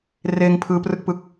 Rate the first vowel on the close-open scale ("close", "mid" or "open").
mid